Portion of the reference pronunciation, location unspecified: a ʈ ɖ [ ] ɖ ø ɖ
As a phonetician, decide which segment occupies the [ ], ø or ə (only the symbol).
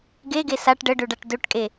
ə